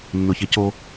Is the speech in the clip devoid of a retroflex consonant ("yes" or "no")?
yes